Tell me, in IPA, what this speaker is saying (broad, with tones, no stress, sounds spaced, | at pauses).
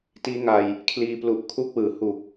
t iː˦˥ ŋ a˧ j | kʰ l iː˧ p l u˨˩ ʔ kʰ u˦˥ k̚ w ɯː˩˦ h u˨˩ k̚